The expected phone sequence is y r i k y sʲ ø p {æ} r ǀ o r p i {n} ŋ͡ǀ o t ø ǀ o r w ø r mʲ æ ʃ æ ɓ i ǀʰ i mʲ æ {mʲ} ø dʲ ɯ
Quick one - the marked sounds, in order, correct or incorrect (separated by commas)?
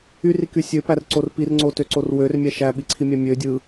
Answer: correct, incorrect, correct